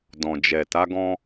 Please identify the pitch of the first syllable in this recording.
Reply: low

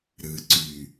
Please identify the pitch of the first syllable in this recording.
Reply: low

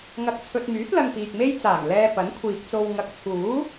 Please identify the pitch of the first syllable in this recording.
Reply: low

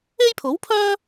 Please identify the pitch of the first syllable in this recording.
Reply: high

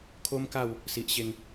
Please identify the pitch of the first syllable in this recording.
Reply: high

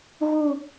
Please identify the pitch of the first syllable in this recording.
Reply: falling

